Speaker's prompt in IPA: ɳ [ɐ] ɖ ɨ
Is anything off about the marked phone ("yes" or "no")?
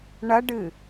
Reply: no